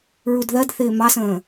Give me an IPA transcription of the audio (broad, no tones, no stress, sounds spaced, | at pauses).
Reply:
ɹ u d ð ɜ d θ ɪː m ɑ s ə̃ː